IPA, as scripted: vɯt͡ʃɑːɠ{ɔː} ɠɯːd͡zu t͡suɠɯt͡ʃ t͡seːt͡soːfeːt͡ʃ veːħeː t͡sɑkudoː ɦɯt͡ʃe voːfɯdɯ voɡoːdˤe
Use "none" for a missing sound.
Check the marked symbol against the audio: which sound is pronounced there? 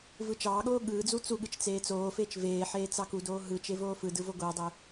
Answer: oː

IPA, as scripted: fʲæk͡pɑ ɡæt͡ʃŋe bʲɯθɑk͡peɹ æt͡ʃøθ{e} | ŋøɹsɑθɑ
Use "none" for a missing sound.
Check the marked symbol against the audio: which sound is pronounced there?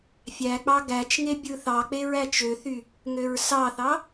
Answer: y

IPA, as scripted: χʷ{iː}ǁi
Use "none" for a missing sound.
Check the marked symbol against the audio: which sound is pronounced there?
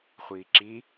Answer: iː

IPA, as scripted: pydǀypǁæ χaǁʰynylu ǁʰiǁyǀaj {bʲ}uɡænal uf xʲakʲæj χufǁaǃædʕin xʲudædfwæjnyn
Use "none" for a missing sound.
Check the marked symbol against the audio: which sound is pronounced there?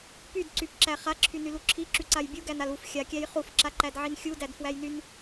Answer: bʲ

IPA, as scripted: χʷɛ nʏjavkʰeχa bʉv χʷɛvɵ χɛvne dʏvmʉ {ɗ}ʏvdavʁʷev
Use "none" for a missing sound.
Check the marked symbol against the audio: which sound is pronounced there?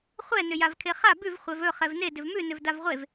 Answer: n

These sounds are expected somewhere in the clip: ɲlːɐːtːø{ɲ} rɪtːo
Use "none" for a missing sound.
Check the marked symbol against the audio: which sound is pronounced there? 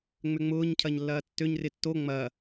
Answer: ɲ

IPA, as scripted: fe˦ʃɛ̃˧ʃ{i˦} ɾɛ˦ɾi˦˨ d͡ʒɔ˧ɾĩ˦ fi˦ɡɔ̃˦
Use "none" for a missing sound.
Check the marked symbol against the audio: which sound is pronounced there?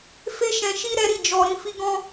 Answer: i˦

